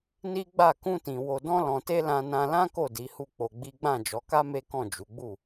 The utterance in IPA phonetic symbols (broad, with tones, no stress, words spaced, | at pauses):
ni˦ ɡ͡ba˦˨ kũ˧tĩ˨ wo˧dɔ̃˦lɔ̃˧te˦ lã˧nã˧lã˦ ko˦˨di˨˦hu˦˨ k͡po˧ɡ͡bi˦ ɡ͡bã˦˨d͡ʒɔ˨˦ka˦ me˦kɔ̃˦˨d͡ʒu˨˦ɡ͡bu˦˨